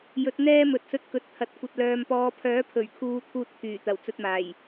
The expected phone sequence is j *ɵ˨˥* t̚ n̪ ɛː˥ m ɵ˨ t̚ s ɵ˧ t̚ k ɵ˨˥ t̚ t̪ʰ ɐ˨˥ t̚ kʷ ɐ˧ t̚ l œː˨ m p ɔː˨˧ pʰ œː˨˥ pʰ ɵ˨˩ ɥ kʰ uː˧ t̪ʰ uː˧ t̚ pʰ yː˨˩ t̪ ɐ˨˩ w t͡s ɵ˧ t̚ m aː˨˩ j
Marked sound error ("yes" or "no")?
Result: no